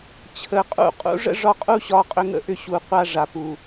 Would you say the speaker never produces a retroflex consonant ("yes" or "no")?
no